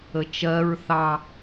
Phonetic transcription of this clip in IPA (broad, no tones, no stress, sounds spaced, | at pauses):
ə t͡ʃ ɜ ɹ θ ɑ